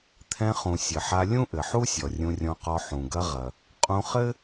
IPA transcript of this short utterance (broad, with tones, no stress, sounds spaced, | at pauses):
t̪ʰ ɛ̃˧ χ ũ˩ sʲ ɘ˩ ħ a˧ lʲ ũ˥ ʔ ɘ˩ ħ u˥ sʲ ɔ˩ rʲ ũ˧ rʲ ɔ̃˧ q ɔ˧ ħ ũ˩ ɡ ɐ˧ ʁ ɐ˩ | qʼ ũ˧ χ ɘ˥